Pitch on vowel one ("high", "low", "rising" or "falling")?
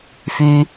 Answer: low